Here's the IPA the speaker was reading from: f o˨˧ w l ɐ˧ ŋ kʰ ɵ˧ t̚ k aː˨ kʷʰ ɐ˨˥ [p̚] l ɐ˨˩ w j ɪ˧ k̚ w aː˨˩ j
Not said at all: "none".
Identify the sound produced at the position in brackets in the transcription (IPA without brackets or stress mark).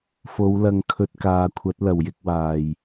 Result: t̚